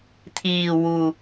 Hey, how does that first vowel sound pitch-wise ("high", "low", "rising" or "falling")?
low